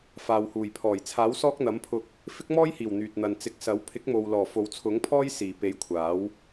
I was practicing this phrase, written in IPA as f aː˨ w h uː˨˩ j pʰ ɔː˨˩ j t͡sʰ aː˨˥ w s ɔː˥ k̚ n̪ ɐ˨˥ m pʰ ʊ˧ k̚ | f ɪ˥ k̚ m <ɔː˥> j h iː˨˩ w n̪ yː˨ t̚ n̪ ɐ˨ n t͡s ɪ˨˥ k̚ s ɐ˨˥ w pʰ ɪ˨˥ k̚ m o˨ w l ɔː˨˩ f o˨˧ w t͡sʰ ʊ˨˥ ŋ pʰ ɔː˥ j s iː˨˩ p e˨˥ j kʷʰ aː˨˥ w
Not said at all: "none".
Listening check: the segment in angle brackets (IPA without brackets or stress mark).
ɔː˥